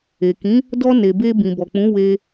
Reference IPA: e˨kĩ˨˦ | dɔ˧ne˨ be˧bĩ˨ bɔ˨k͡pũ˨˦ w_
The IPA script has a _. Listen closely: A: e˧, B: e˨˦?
A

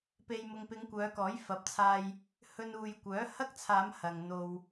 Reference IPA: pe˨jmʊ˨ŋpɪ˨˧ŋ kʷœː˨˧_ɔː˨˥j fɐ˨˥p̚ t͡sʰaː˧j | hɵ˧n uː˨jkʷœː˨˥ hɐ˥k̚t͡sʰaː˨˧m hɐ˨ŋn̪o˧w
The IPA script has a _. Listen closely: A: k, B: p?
A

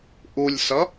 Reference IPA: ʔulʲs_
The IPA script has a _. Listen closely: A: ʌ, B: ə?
A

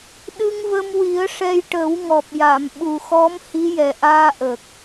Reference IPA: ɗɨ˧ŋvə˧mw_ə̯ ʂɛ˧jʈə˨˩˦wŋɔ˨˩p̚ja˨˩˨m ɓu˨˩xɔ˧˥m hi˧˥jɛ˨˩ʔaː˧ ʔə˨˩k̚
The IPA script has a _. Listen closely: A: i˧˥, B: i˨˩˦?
B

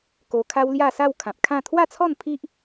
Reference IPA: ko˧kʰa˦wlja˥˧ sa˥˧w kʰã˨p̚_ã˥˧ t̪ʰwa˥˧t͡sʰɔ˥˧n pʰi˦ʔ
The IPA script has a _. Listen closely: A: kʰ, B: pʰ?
A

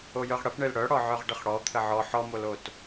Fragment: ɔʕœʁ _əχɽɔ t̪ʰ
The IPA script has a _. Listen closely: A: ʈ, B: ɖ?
B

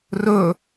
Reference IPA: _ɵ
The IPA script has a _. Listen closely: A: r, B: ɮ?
A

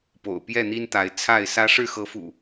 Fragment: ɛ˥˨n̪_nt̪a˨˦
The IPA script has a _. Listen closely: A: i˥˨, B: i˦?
B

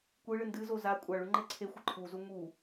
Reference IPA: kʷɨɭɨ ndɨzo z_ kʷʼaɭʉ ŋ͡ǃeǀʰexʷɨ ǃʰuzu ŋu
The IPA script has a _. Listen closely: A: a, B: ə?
A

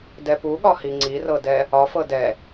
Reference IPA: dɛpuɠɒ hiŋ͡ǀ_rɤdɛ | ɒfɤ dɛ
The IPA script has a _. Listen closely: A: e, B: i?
B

